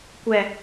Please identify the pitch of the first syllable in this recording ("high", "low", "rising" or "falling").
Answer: low